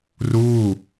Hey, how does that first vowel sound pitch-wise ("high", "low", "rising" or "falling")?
falling